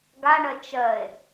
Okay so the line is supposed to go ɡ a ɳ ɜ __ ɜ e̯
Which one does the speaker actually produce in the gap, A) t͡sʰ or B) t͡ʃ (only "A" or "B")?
B